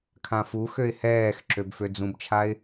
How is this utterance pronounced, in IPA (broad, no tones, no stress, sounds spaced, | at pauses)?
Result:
kʰ ã f u x ø ɪ̯ h ɛː x ǁ ø b f ø d͡z ũ b t͡ʃʰ a ɪ̯